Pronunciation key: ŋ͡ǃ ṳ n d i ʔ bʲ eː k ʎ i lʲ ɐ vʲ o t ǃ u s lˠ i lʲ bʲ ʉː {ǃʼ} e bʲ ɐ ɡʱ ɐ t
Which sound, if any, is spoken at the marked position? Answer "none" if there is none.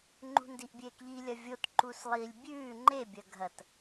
ŋ͡ǃ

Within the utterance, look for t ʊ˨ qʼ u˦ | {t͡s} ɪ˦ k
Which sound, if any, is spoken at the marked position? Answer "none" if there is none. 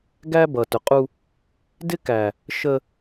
d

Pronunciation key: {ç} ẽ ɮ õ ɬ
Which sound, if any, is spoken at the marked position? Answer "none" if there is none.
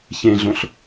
ç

